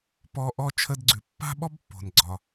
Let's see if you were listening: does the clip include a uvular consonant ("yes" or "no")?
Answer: no